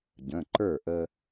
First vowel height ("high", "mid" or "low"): mid